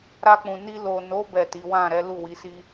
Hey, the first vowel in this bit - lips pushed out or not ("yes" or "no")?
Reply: no